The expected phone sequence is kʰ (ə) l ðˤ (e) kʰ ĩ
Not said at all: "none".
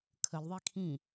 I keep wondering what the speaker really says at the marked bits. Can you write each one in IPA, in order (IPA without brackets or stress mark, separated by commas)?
ə, i